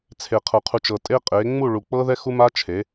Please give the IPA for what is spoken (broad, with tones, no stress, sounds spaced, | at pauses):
t͡sʰ e˨ qʰ ɤ˨ qʰ u˨ t͡ʃ ɤ˨ tʼ e˦ qʼ e˨˦ ŋ͡m u˦˨ ɭ u˨ k͡p ɤ˦ ð ɛ˦ x u˦ m a˦ t͡ʃʰ e˨˦